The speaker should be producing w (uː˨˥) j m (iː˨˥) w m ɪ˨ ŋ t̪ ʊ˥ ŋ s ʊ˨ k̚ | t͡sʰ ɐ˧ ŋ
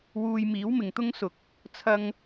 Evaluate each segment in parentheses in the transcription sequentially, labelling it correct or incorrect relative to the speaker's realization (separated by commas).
incorrect, correct